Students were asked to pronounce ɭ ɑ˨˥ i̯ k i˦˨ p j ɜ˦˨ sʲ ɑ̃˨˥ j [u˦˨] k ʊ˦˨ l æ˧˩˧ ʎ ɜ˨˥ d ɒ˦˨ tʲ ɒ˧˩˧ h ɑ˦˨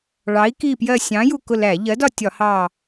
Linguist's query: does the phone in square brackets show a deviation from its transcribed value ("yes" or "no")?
no